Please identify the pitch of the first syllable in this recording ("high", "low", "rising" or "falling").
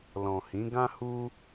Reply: low